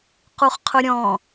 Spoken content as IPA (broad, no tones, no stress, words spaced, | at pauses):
quχqʰʊɾʲɔ̃